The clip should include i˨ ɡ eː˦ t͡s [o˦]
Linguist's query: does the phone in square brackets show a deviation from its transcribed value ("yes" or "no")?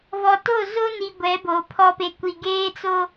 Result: no